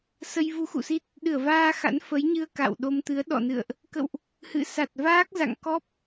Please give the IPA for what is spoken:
s ə˧ j v u˨˦ x ṵ˧˨ s i˦˥ t̚ | ɗ ɨ˧˩ ə̯ v aː˧ x a̰˧˥ n f ə˨˦ j ɲ ɨ˧ ə̯ k a̰˧˨ w ɗ o˧ m t̪ ɨ˨˦ ə̯ ɗ ɔ̰˧˨ n ɨ̰˧˨ ə̯ ʔ | k ə̰˧˨ w ʔ | h ɨ̰˧˨ s a˨˩ t̚ v aː˦˥ k̚ z a̰˧˨ ŋ k ɔ˦˥ p̚

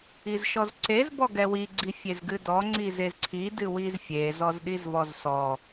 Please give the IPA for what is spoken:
i z ʃ ɔ z ǀ e z b ɔ ɡ ɛ w i ɡ͡ǀ i fʲ e z ɡ ɨ d ɔ ŋ͡ǀ i z e z ǀʰ i d ɨ w i z fʲ e z ɔ z ɗ i z v ɔ z s ɔ

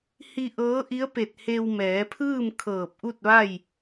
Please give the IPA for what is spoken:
h i˧ ʔ ɤː˧˥ ʔ i˧˥ ə̯ p e˧˩ t̚ h e˧ w m ɛː˩˧ pʰ ɯː˥˨ m kʰ ɤː˧˩ p̚ ʔ u˥˨ t̚ ʋ a˥˨ j

